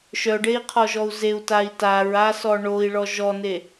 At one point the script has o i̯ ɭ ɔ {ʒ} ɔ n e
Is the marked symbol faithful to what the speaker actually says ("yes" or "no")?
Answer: yes